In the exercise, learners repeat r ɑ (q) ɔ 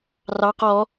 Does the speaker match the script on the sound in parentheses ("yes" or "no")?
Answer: yes